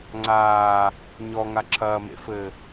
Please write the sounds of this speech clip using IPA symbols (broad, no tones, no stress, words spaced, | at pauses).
ŋ͡ǀaː | ɲɔŋa ǁʰɐːmḛfɘː